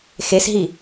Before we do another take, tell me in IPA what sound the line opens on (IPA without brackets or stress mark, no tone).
x